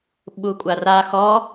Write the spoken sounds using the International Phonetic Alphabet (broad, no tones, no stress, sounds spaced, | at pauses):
ɓ u kʷʼ a r a x ɔ